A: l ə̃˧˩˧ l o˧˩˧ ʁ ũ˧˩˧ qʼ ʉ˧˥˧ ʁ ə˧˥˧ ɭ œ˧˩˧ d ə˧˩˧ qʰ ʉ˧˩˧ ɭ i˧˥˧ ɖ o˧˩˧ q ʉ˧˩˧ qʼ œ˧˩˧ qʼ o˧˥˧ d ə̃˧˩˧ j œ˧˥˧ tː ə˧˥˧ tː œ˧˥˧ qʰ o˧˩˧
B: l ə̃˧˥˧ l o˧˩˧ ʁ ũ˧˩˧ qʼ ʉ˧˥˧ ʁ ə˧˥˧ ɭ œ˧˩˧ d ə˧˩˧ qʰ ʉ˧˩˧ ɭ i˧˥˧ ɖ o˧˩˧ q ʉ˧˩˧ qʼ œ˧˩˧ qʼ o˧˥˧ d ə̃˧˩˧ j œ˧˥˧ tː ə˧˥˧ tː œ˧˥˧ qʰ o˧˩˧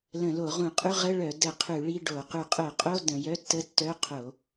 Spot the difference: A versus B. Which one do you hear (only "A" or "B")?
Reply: A